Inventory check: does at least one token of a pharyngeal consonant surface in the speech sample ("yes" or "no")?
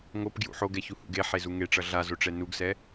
yes